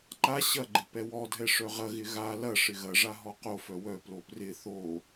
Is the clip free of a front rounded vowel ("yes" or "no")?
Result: no